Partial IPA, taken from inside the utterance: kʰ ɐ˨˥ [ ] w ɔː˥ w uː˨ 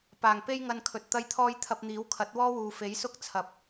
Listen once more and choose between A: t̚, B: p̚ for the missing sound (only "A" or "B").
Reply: A